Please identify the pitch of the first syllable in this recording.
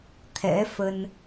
rising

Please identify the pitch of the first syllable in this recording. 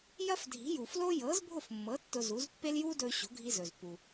high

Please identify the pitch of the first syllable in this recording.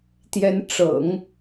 rising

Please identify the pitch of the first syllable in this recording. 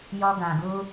high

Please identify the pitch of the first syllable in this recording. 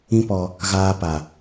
high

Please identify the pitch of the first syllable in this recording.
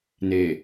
low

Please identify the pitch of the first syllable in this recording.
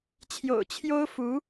low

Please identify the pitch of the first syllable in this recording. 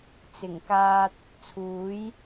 low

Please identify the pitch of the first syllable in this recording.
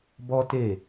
high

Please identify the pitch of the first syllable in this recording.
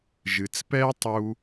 low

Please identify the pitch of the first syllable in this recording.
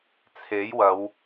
rising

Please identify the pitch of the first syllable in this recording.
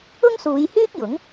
high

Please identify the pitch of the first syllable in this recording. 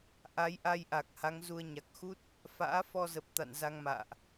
rising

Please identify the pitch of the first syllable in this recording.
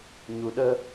low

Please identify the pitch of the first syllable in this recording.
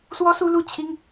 high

